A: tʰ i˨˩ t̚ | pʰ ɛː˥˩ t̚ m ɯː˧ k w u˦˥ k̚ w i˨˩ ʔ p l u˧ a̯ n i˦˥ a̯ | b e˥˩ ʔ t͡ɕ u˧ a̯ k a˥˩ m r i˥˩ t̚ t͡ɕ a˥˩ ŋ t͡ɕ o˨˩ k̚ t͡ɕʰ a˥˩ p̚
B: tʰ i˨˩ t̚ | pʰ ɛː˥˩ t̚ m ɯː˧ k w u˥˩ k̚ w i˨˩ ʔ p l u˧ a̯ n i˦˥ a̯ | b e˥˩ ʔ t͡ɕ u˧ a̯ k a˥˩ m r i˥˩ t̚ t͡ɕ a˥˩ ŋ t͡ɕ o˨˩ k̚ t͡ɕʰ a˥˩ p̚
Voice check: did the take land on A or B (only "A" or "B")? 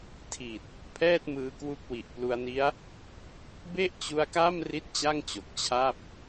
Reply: A